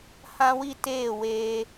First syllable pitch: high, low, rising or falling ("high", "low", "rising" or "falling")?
high